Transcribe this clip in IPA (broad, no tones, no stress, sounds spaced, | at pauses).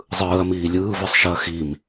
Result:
zˤ ɯː ɐ̯ m iː lʲ ɯː v ɯ sˤ ʃ ɯ ɐ̯ x i m